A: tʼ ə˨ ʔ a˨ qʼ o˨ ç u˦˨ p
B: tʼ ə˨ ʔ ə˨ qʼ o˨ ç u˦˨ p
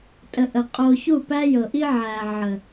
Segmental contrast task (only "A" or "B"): B